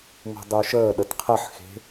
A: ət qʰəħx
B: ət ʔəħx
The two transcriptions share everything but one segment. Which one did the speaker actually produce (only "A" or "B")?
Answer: A